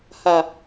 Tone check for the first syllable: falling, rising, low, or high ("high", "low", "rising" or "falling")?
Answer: low